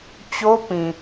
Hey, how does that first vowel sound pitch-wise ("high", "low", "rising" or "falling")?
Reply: high